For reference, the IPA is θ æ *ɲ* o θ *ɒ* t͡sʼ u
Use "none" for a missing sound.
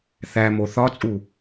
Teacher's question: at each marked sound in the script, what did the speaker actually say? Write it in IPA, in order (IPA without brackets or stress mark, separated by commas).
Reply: m, ɒ